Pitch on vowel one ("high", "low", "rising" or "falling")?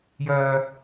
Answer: low